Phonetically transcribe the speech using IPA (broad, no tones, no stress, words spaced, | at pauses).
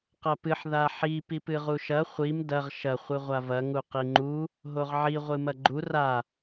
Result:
qɐpɨħ ðaħi pipɨʁuʃɐ χʷim dɐʁ ʃɐ χʷɨʁʷavɐ ŋuqiŋ͡ǃu | ɦoʁʕi ʁʷɨmɐɡ͡ǃu ra